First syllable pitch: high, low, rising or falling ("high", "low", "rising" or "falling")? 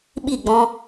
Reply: falling